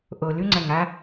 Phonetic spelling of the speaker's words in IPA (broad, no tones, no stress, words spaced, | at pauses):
ʔolʉ ŋ͡ǀɐŋa